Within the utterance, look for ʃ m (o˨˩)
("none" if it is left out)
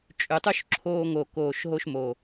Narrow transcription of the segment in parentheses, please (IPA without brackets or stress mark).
o˨˩